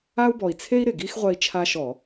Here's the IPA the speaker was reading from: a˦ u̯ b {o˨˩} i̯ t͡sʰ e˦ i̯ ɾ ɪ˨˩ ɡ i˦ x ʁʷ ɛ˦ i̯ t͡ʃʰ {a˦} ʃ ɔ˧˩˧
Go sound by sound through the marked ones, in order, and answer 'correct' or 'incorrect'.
incorrect, correct

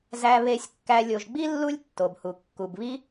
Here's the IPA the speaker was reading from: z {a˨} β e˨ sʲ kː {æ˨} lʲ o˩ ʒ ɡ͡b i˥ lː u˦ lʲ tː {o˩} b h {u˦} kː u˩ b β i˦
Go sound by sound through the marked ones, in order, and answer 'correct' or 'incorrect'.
incorrect, correct, correct, incorrect

